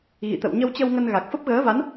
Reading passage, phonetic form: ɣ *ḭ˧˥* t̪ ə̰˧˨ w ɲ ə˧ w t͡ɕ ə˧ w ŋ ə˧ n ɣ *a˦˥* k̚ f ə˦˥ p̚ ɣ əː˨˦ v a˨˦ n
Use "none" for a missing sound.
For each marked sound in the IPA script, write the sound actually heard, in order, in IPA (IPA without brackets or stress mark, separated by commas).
ḭ˧˨, a˨˩